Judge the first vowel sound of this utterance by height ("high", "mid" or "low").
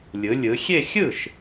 high